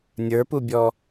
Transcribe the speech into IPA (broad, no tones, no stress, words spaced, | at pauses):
nʲə˞pubʲɔ